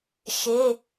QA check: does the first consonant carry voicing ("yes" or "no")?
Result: no